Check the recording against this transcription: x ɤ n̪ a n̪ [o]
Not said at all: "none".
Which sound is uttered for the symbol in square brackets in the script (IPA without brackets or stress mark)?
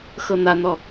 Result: ɔ